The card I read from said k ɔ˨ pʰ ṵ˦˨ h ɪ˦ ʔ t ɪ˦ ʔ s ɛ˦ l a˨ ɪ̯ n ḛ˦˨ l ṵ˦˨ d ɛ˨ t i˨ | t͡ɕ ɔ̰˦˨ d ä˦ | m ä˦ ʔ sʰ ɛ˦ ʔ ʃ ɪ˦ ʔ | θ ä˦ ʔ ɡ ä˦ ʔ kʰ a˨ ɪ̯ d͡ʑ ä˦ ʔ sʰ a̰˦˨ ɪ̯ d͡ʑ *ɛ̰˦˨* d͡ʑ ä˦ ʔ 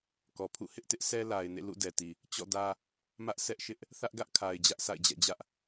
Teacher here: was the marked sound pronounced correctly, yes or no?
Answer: yes